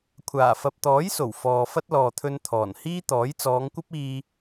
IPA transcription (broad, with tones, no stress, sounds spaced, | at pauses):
kʷʰ aː˨˩ f ɐ˨ p̚ t̪ ɔː˨˥ j s o˨˩ w f ɔː˨ f ɐ˥ t̚ l ɔː˨ t̪ʰ ɵ˧ n t̪ʰ ɔː˨˩ n h iː˥ t̪ ɔː˨˥ j t͡s ɔː˨˧ ŋ kʷ ɐ˥ p̚ iː˧